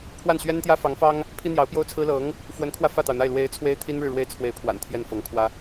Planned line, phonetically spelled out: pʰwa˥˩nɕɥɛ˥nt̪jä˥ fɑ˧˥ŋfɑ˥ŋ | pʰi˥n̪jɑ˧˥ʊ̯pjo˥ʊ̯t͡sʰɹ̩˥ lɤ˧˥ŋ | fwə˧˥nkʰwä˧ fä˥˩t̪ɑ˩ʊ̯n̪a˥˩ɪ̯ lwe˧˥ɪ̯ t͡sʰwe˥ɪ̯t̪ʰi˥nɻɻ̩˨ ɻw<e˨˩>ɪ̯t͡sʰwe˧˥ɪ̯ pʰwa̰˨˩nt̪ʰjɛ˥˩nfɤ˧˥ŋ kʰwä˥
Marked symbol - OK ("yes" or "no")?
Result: no